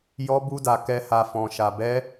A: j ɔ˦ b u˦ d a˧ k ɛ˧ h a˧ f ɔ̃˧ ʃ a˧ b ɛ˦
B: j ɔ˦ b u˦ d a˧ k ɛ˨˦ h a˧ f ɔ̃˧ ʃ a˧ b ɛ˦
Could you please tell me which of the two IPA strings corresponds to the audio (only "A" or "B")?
A